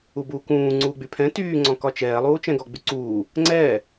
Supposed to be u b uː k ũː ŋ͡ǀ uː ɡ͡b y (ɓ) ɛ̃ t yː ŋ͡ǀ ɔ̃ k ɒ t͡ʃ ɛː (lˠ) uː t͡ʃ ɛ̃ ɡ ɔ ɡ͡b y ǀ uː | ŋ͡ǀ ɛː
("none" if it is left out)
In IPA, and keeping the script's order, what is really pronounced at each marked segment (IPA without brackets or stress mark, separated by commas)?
pʰ, lˠ